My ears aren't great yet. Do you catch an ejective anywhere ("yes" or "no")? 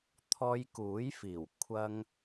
no